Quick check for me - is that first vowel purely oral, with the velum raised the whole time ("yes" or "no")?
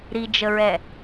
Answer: yes